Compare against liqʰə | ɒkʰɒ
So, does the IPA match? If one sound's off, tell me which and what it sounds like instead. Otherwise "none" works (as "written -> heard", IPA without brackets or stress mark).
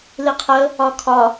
none